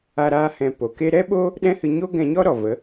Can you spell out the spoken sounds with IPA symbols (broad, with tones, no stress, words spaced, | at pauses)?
a˦ɾaː˦hɛ̃˧ po˨ke˧ ɾɛ˦ɓo˦ | ɗɛ̃˦hɨ˧ ɲo˦ɡɛ̃˧ɲɔ˦ɾɔ˨ və˨˦